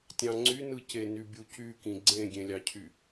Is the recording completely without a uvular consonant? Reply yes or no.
yes